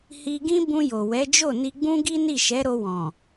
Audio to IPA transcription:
h i˧ ɡ ĩ˦ b ũ˧ j o˨ w ɛ˨˦ d͡ʒ o˦˨ n i˧ ɡ͡b ũ˦ ɡ i˦ n i˦˨ ʃ ɛ˨˦ ɾ o˧ w ɔ̃˨

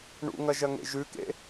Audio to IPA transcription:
ɳ ṵ ŋ ɐ ʒ ɐ ŋ ḛ ʒ ʉ k ḛ

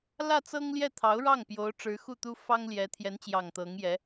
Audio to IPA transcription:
l ä˥˩ t͡s ɤ˥ ŋ l j ɛ˥˩ t̪ʰ ɑ˧˥ ʊ̯ ɻ ɑ˥˩ ŋ p j o˧˥ ʊ̯ ʈ͡ʂ ɻ̩˧˥ x u˥˩ t̪ u˥ f ɑ˥ ŋ l j ɛ˧˥ t̪ʰ j ɛ˧˥ n t͡ɕ j ɑ˨˩ ŋ t̪ ɤ˧˥ ŋ j ɛ˧˥

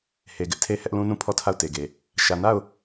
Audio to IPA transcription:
h e˨ ɡ ɪ˦ ʔ tʰ e˦ h ɛ˦ ʔ l ũ˦ n ũ˦˨ pʰ ɔ˦˨ tʰ a˦˨ ʊ̯ t e˨ ɡ e˨ | ʃ ä˨ n a˦˨ ʊ̯

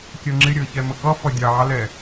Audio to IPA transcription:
kʲ ɜ ŋ͡ǁ ɪ ɾʲ əː ç ɛ m ə k ʌ f ʌ dʲ ɑː l ɛ

